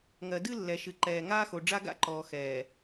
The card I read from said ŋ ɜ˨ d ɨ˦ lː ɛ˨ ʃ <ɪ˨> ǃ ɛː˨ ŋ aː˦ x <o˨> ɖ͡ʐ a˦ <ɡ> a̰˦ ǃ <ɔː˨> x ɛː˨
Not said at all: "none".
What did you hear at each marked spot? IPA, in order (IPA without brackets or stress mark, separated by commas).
ɨ˨, o˨, ɡ, ɔː˨